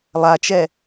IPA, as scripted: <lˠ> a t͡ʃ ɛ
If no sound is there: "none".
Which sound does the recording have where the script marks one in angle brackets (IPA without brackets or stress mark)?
lˠ